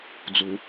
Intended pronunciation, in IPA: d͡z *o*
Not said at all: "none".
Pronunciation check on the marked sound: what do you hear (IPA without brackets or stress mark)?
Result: u